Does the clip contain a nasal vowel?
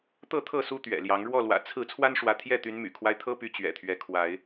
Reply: no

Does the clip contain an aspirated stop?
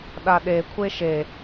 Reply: yes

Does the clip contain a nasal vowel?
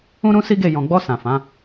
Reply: yes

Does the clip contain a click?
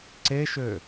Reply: yes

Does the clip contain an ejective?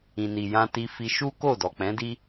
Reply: no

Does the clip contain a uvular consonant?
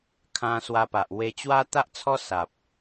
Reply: no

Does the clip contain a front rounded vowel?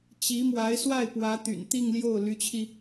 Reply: yes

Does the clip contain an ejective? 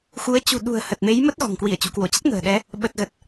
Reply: no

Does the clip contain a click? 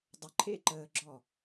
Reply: yes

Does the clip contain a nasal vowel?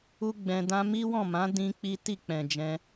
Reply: yes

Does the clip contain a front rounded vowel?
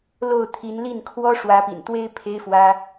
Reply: no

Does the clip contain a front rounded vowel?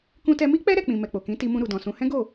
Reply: no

